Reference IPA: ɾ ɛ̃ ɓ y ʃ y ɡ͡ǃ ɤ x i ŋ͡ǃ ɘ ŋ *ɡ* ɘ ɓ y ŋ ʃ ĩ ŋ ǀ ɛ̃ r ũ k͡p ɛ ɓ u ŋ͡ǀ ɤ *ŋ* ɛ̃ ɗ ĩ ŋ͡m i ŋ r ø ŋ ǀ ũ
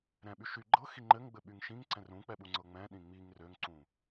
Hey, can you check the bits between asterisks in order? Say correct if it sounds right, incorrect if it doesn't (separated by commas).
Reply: incorrect, incorrect